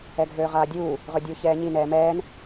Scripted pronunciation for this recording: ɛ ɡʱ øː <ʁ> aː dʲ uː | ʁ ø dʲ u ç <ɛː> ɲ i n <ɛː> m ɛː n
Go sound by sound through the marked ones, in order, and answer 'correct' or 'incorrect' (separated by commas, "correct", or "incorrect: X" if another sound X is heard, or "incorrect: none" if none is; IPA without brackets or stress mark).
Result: correct, correct, correct